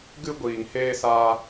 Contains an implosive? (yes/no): no